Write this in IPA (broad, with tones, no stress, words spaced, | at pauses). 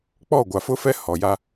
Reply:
k͡pɔ˦˨ ɡʷa˨fʊ˦fɛ˦ hɔ˨ja˦